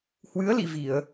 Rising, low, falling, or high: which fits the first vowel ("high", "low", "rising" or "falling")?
rising